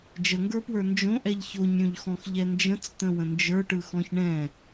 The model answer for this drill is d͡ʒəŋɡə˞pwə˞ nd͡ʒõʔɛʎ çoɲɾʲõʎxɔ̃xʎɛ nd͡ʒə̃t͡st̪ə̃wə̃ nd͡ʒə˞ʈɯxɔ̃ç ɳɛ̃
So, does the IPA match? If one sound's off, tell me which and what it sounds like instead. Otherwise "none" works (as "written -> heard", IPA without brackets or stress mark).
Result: none